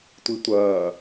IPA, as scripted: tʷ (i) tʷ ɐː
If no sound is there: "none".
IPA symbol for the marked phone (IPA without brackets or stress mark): i